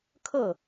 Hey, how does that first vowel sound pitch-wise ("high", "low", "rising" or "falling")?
falling